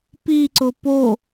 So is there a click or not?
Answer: yes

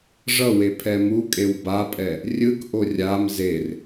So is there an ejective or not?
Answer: yes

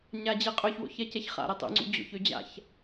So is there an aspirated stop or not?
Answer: no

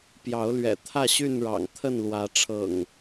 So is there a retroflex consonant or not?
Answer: yes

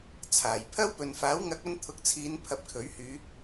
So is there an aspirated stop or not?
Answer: yes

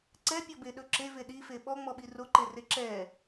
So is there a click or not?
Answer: yes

